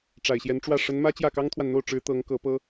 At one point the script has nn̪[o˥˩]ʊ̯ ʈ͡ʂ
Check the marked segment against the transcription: correct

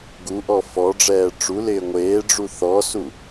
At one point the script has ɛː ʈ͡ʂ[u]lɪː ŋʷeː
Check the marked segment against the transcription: correct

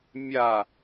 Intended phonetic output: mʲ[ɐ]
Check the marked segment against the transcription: incorrect: a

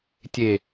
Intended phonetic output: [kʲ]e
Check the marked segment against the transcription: incorrect: tʲ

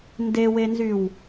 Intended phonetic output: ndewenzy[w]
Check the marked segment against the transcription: correct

